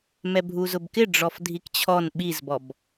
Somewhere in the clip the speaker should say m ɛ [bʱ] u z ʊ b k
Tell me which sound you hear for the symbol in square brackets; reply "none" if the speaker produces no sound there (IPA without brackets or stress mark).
bʱ